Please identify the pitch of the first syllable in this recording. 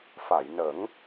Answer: low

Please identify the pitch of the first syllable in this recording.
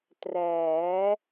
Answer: rising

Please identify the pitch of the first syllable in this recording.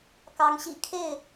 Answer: rising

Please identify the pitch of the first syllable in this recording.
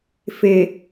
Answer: low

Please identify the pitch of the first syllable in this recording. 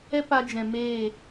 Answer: high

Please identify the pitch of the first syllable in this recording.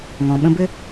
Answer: low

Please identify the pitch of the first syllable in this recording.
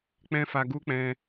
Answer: high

